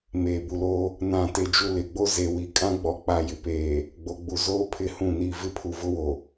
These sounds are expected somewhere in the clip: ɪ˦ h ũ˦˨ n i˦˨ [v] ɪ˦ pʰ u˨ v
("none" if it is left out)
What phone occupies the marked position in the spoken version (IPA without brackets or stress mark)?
v